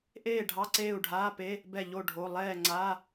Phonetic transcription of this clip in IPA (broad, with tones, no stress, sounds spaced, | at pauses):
ʔ eː˥˩ ɖʱ ɑ˧˥˧ ǀ eː˥˩ u̯ ɖʱ aː˧˥˧ p e˧˥˧ | b ɛ˥˩ ʎ o˥˩ ɖʱ o˧˥˧ lˠ ɛː˥˩ ŋ͡ǀ a˧˥˧